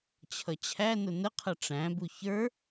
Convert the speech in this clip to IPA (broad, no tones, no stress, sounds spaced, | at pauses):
t͡ɕʰ ʌ t͡ɕʰ æ n ʊ n ə qʰ ʌ ʈ͡ʂ æ̃ b u ç ə˞